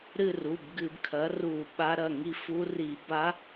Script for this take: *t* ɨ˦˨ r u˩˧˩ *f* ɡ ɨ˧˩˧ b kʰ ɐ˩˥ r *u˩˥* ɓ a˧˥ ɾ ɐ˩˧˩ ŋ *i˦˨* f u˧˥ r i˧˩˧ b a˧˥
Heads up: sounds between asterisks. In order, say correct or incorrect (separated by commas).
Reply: incorrect, incorrect, incorrect, correct